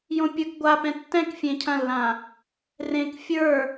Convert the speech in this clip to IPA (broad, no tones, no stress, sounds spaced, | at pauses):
j õ pʲ ə˞ k ɡʷ a p ɛ̃ tː ɛ̃ k fʲ ẽ cʰ ɐ̃ lː ã | r ẽ k fʲ ə˞